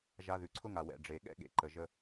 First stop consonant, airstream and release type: click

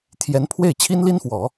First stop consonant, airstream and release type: aspirated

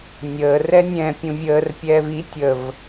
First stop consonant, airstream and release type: plain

